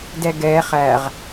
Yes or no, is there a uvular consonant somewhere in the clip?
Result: yes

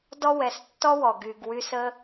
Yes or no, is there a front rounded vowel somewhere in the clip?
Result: yes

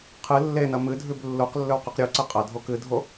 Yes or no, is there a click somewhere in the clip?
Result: yes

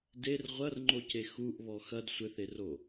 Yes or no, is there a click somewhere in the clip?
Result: yes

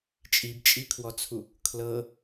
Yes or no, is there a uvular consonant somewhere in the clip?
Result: no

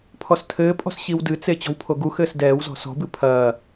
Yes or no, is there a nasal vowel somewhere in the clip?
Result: no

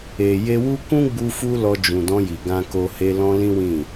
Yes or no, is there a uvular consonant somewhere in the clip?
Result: no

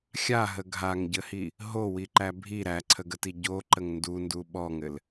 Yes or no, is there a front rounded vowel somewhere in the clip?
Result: no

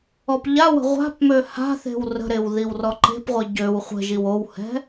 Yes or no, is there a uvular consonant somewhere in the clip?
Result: yes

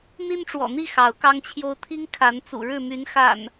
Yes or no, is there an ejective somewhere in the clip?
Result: no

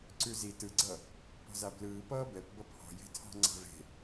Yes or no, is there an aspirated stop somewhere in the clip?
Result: yes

